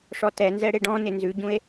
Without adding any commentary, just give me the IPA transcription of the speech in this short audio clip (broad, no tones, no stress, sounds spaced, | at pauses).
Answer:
ʂ ɔ t ɛ n z ɛ ɽ e ɖ ɔ̃ n ɪ n z ʉ ɟ ũ e̯